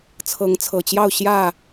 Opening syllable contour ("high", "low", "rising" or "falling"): rising